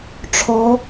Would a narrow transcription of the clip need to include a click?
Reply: no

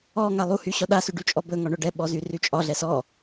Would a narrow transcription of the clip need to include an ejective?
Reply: yes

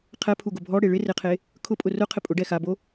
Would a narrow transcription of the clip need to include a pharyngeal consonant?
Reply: no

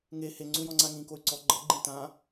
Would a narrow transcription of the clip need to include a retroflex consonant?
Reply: no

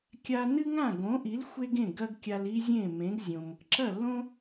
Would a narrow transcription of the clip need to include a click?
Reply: yes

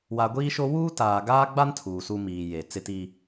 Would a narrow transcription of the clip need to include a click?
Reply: no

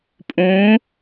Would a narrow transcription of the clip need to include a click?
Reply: no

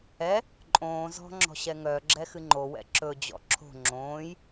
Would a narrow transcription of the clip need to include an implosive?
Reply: no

